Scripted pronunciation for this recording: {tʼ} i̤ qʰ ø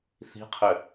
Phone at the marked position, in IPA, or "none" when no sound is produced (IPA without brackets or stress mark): θ